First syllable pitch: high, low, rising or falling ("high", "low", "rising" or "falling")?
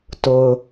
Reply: low